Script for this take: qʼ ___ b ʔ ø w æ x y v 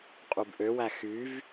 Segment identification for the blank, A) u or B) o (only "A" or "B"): A